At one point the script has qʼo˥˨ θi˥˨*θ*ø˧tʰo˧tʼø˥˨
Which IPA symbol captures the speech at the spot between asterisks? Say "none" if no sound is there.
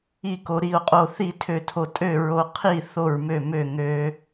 tʰ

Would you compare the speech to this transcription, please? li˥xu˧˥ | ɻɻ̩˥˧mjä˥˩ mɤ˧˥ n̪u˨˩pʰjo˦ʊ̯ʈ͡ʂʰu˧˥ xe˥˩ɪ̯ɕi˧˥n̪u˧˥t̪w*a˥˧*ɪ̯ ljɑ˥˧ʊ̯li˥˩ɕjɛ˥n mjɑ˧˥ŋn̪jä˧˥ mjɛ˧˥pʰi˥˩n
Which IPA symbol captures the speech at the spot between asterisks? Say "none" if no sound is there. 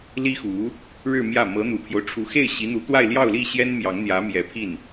a˥˧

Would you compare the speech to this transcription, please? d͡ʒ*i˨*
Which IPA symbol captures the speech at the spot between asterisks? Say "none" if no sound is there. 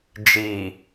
iː˨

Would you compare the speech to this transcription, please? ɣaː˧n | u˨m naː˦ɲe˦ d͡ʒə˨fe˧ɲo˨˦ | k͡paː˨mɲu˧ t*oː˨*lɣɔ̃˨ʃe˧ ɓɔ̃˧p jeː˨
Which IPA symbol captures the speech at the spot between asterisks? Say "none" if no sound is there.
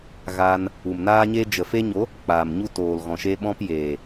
oː˨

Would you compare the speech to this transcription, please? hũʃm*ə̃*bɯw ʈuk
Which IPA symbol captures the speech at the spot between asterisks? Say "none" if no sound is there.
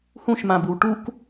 ã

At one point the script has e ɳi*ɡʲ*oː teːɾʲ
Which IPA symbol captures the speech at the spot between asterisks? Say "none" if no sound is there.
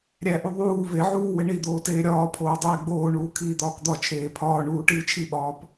d̪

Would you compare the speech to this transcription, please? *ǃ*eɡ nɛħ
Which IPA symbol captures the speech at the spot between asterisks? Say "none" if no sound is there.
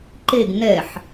ǃ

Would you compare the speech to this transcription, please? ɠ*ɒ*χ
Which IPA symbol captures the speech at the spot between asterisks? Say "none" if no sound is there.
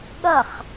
ʌ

